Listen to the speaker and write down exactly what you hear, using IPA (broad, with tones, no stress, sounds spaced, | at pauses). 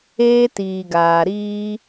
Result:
eː˧ t iː˨ ɡ aː˨ ɾ iː˧